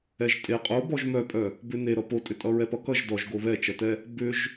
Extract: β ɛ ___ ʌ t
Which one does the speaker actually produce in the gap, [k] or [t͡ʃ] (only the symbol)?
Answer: t͡ʃ